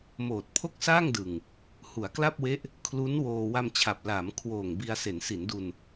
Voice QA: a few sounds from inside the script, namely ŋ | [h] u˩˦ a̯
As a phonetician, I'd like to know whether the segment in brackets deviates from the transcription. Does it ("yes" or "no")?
no